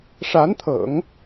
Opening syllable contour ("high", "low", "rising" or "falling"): rising